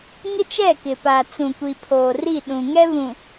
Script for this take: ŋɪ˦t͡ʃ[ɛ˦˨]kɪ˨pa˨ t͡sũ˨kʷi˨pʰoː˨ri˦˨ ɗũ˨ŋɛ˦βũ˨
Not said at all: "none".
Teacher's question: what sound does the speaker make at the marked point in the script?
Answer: ɛ˦˨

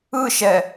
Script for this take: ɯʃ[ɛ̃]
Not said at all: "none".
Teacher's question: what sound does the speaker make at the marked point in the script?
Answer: ɛ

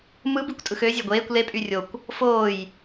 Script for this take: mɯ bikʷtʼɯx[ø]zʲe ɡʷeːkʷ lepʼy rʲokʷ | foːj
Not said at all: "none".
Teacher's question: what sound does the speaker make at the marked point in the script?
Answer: ø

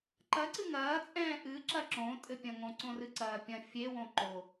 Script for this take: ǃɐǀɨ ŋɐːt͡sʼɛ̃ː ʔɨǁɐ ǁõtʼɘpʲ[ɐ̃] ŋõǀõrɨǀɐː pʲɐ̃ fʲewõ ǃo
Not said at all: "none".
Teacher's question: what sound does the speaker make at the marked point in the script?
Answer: ɐ̃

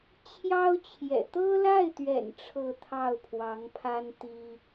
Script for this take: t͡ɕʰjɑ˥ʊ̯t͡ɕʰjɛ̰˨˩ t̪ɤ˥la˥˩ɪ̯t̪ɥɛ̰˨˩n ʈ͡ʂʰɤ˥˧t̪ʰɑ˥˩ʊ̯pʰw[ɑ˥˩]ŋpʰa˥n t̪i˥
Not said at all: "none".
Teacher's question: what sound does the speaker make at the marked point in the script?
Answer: ɑ˧˥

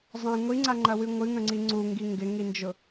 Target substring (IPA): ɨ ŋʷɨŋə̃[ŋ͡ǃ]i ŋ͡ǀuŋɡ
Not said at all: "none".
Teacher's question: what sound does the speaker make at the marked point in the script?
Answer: ŋ͡ǀ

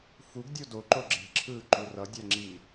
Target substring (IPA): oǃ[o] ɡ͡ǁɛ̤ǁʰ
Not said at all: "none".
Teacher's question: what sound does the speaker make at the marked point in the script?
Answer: o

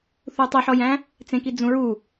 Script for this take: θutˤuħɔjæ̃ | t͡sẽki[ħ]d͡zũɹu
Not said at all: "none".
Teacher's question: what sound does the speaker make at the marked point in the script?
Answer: none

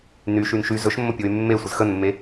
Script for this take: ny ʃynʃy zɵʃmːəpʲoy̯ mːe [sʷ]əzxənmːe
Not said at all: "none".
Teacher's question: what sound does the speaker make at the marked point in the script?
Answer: sʷ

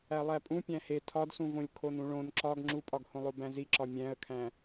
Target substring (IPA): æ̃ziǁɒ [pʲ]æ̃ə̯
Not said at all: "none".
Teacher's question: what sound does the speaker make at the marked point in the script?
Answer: mʲ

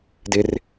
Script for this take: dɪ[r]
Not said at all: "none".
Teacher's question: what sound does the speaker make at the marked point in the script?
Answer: r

